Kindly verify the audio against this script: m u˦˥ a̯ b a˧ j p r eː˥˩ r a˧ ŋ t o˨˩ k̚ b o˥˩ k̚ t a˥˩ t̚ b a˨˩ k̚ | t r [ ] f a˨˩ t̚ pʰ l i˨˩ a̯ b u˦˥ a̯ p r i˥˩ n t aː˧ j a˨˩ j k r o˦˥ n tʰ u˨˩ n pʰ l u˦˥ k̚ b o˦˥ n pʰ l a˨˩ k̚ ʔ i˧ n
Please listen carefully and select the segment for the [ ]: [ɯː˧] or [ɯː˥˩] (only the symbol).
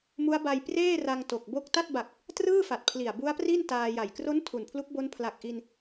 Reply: ɯː˥˩